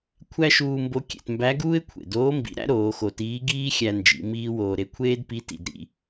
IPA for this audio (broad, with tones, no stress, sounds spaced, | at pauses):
kʷʰ æ˥ ʃ uː˧ m b o˧˥ kʲ ḛ˩˧ t m b æ˧˥ ɡ uː˥ ɪ̯ kʷʰ ḛ˩ d oː˧˥ m b ḭ˩˧ ɾ æ̰˥ ɾ oː˩˧ x o˧ t iː˧˥ ɡ iː˥ xʲ æ˧ n d͡ʒ ḭ˩˧ m iː˥ w oː˧ ɾ e˥ kʷʰ eː˥ d p i˧˥ t ḭ˩˧ d ɾ ḭ˧